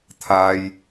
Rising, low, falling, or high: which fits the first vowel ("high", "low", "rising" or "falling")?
high